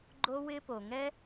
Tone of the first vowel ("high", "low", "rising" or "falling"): high